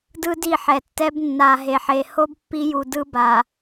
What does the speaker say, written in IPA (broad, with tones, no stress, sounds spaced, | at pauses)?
d ɯ˦ d i˦˨ ħ ɛ˨ tː ɛ˦ b nː a˨ ɦ e˨ ħ e˨ h o˦ b pː i˦ j u˨ d ɯ˦ b a˨